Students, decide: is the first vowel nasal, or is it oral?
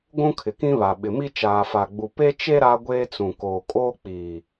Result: nasal